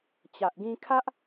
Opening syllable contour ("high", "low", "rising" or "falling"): low